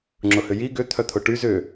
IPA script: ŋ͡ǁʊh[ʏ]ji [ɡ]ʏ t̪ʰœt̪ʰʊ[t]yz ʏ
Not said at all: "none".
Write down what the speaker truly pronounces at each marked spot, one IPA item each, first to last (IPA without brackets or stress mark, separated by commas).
ʏ, ɡ, ʈ